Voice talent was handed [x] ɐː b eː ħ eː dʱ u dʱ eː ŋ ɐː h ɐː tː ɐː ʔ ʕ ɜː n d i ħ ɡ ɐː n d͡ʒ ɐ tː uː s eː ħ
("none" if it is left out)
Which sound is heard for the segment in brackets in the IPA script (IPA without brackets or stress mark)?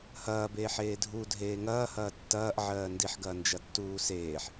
h